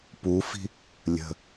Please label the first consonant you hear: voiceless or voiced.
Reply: voiceless